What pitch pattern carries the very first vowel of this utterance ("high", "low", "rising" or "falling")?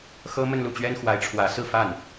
high